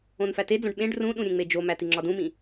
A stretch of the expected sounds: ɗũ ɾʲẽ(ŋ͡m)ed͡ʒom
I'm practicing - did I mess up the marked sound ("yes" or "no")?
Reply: no